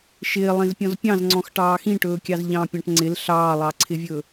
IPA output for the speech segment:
ʃ ɪː lˠ ĩ z pʲ ɔ̃ z pʲ ɑ̃ z ŋ͡ǀ ɔ̃ x ʈ ɑː x ĩ ʈ ɵː kʲ ɑ z ʎ ɑ̃ pʲ ɑ̃ ʈ ŋ͡ǀ ɪ l ɬ ɑː lˠ ɑ ǀʰ ɪ vʲ ɵ

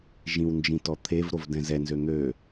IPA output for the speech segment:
ʒ ĩ w n d͡ʒ ĩ t ɔ t̪ʰ e v ɾ o v d ɛ̃ z ɛ n z ø n̪ ø

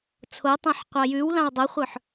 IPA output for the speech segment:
t͡sʰ o tˤ õ ħ qʷ ɑ j ʉ w l ɑ̃ w dˤ o χʷ œ ħ

